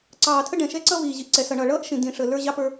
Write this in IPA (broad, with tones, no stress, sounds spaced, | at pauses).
ǀ ɑː˨ tʰ ə˦ ɖ ɛ̃˨ ʃ ɛ˦ ǀ ʌ˦ v iː˨ ʑ i˨ ʔ ǀ ɛ˨ s ʌ˨ ɳ ʌ˨ ɭ ʌː˦ ʔ ʃ ĩ˨ d ĩ˨ ʂ ə˨ l ə˞˦ ʑ ɑ˦ p ə˞˦